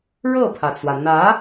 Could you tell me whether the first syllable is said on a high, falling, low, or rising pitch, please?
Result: falling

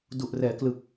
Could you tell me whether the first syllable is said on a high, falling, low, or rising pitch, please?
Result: low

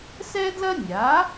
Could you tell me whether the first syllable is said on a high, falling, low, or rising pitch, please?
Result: high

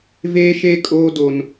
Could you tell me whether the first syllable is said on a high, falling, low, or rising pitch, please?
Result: high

